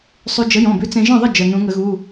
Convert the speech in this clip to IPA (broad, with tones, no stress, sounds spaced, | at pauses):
sˤ ʉ˧ d͡ʒ ə˨˥ j ɔ̃˩˧˩ b ʉ˨˥ t͡s ẽ˧ ʒ ə̃˥˩ ðˤ ə˥˩ d͡ʒ ə˩˧˩ n ũ˨˩˦ ŋ ə˨˩˦ ɣ u˩˧˩